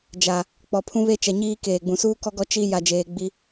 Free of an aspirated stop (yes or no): no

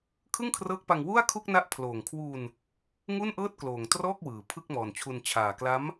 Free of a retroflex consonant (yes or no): yes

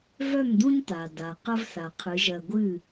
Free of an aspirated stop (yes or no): no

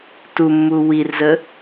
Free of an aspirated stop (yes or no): yes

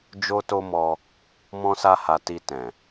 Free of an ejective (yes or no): yes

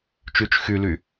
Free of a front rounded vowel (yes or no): no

